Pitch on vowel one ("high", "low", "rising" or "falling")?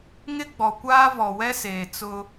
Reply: high